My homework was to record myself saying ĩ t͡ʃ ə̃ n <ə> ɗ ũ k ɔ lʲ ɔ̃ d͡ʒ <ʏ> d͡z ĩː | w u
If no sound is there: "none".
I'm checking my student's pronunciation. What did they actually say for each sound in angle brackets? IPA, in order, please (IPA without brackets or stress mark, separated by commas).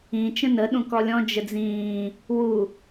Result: ə, ə